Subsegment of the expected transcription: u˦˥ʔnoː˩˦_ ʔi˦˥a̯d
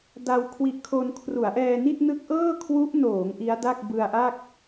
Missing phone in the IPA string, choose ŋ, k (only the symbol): ŋ